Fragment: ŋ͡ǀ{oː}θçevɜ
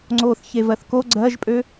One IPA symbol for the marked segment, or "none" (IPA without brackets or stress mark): oː